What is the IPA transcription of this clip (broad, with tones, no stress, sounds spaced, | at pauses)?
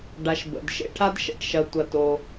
ɖ a˨ ʃ b ə̰˩ d ʃ ḛ˦ ʈʰ a˥ d ʃ ɛ̰˨ ʈ ʃ ɐ˨ tʷ ɐ˨ t o˨